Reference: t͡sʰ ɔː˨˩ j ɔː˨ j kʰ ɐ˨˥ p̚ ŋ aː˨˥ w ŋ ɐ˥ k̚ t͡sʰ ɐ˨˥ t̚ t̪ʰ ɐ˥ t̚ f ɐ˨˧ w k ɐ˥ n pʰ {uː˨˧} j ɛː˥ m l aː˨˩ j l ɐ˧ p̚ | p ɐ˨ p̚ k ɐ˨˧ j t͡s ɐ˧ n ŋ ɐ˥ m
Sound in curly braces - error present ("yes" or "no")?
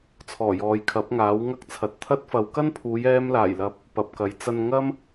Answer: no